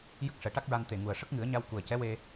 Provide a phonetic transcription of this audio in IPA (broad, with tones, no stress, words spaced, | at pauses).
jə˦˥k̚ʂɛ˨˩˦ʈa˦˥k̚ɹa˧n t̪e˨˩ŋu˨˩ə̯ ʂə˦˥k̚ŋɨ˨˩˦ə̯ɲa˧w ku˨˩ə̯cɛ˧˥ we˧